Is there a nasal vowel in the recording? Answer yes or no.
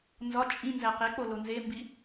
yes